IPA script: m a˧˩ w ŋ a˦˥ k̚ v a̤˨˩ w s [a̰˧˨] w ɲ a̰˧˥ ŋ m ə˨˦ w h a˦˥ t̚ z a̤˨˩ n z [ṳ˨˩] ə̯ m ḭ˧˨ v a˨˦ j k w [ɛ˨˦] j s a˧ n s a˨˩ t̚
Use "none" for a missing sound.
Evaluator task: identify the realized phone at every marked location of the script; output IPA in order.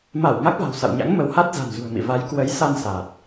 a̰˧˨, ṳ˨˩, ə˨˦

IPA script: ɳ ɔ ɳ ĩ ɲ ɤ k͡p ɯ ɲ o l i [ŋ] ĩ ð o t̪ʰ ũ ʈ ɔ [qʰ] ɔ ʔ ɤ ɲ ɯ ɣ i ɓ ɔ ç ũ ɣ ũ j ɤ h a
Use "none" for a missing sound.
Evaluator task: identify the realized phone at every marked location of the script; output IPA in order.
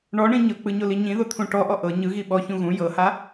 ɲ, ʔ

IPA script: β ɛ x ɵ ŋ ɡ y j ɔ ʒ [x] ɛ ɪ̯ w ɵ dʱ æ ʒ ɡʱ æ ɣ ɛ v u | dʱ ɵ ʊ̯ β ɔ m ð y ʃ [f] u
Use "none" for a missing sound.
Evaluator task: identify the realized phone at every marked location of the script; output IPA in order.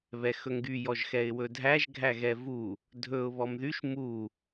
x, m

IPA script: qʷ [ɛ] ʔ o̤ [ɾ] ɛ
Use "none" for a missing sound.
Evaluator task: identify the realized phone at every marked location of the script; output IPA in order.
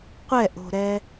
ɛ, ɾ

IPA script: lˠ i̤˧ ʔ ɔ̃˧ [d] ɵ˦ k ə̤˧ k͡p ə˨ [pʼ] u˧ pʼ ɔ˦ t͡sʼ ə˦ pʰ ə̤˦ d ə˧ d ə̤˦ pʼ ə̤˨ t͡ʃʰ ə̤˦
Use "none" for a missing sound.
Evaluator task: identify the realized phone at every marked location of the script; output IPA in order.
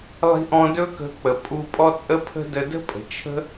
d, pʼ

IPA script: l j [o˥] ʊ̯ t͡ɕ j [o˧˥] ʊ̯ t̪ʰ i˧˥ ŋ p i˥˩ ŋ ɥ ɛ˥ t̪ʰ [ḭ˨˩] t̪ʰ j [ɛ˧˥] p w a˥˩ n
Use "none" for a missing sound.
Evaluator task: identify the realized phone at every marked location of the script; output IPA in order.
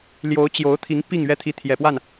o˧˥, o˧˥, i˧˥, ɛ˨˩

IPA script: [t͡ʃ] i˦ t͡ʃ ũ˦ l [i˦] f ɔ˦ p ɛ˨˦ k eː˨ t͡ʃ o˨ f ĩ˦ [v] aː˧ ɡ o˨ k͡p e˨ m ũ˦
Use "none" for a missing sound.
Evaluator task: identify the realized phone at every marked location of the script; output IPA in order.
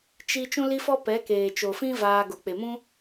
t͡ʃ, i˦, v

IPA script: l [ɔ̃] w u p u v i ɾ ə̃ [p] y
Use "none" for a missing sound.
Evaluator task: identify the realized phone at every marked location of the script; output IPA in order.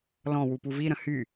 ɔ̃, h

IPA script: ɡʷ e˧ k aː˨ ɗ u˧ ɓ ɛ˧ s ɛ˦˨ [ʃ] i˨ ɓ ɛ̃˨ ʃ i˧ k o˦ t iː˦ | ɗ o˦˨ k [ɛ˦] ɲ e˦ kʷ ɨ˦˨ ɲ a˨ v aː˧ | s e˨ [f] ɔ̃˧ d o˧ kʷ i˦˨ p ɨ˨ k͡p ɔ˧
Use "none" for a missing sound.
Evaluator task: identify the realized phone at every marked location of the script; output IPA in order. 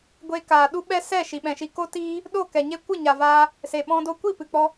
ʃ, ɛ˨, ɓ

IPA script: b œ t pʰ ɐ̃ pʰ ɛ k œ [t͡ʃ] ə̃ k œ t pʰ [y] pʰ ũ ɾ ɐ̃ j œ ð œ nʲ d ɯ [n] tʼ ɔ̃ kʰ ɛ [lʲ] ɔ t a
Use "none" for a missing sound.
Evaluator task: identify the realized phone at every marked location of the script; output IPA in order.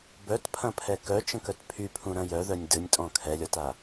t͡ʃ, y, nʲ, lʲ

